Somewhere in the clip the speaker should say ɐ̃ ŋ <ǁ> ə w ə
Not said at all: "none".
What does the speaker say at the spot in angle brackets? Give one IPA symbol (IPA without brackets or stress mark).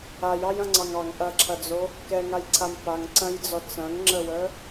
ŋ͡ǁ